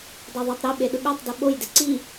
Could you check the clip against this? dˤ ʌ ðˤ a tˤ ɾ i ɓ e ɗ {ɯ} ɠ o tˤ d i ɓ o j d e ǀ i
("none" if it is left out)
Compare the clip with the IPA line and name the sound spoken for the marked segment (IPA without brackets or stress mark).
ɯ